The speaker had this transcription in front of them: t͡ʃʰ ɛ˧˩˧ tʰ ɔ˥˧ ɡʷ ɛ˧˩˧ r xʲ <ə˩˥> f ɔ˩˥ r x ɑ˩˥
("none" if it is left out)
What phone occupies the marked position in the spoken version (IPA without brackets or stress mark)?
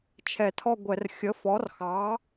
ə˩˥